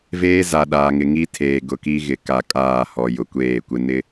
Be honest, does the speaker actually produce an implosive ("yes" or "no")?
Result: yes